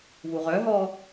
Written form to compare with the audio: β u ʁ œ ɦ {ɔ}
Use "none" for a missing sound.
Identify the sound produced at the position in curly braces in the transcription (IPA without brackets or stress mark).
ɔ